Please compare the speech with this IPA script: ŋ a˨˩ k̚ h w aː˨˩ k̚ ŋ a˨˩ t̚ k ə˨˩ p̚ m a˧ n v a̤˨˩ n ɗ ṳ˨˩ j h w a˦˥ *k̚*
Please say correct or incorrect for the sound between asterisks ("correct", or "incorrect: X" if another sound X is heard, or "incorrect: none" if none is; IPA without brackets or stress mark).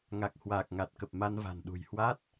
incorrect: t̚